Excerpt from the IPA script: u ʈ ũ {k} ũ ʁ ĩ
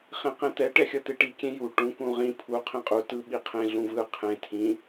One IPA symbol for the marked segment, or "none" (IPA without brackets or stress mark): k